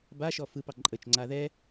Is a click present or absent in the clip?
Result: present